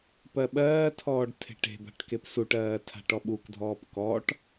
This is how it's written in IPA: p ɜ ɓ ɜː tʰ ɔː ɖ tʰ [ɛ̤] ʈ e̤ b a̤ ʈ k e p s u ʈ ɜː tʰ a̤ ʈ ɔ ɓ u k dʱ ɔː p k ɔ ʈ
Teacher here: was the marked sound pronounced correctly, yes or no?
no